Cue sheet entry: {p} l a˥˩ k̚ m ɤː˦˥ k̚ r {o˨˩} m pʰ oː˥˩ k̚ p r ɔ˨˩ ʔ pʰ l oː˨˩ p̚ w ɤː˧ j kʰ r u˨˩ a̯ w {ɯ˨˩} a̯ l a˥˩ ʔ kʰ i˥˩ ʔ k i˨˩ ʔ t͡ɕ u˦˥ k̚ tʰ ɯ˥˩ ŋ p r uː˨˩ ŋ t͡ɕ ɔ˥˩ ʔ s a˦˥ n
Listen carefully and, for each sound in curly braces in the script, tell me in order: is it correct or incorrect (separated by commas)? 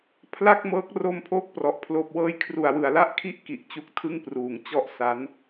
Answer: incorrect, incorrect, correct